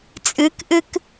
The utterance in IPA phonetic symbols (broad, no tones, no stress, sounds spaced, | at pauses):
t͡sʼ ɨ k ʔ ɨ k